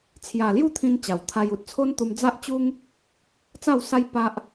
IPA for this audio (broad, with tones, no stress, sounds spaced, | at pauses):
t͡sʰ j a˨˩ l j u˥˧ t̪ʰ ĩ˧ n t͡ɕ a˨˩ w t̪ʰ a˧ j u˨ t̚ t͡sʰ o˦ n t̪ u˧ m d͡z a˦ ʔ t͡ɕ u˦ ŋ | t͡s a˥˧ w s a˦ j p a˦ ʔ